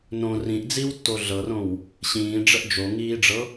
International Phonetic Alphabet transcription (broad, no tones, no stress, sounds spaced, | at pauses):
n õ r ĩ ʔ d͡z i w tː o ɮ ɤ r õ w | ɕ ĩː ɖ͡ʐ ə ʔ d͡ʒ o ŋ iː ɖ͡ʐ ɤ